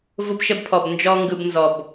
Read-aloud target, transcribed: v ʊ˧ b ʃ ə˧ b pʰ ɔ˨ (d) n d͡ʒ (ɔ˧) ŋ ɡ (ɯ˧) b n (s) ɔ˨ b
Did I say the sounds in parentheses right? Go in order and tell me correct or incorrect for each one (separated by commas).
incorrect, correct, correct, incorrect